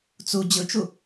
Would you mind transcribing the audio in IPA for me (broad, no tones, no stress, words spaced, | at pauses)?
t͡su d͡ʑɯt͡ʃu